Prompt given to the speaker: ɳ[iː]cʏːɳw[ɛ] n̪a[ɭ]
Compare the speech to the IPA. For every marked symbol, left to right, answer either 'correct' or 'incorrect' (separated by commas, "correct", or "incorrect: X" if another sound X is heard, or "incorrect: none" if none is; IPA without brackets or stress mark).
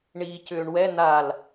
correct, correct, incorrect: l